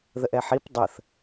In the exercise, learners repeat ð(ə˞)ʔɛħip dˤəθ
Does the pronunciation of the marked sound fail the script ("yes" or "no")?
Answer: yes